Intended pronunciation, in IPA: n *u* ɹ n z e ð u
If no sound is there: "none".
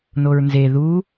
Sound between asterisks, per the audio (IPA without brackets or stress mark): o